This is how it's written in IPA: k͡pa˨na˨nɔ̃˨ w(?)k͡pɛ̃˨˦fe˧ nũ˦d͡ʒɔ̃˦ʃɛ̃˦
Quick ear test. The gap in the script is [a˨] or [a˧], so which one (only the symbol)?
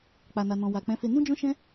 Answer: a˨